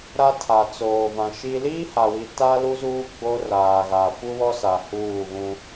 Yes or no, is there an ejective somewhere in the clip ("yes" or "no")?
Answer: no